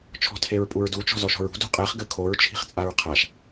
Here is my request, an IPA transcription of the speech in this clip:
t͡ʃʰ ɔ̤ tʰ e ɹ pʼ u ɹ d u t͡ʃ ɔ̤ z ɔ ʃ ɔ̤ ɹ ṳ d ṳ qʼ ɛ χ ɡ ɘ kʰ o ɹ t͡ʃʰ i̤ χ t͡sʼ a ɹ qʰ a ʃ

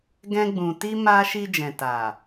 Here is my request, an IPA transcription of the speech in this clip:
ɡ ɛ̃˦ ɡ͡b ũ˧ t i˦ m a˦ ʃ i˧ d͡ʒ ɛ̃˨ t a˨

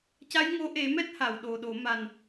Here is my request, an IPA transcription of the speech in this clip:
c a˧˥ j ŋ o˧˥ ʔ e˨˩˦ m ɛ˦˥ t̚ h a˨˩˨ w ɗ o˨˩ ɗ o˨˩˦ m a˨˩ n

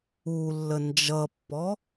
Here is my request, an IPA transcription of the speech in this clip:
u lː ə n d͡ʒ ʌ pː ɔ

